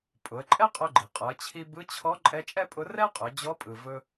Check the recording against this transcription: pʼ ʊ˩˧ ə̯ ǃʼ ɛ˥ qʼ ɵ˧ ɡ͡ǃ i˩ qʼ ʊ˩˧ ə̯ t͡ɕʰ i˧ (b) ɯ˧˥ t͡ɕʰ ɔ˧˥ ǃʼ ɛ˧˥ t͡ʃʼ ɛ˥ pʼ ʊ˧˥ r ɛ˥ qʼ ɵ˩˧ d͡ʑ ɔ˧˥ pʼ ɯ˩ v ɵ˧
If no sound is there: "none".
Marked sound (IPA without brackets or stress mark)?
b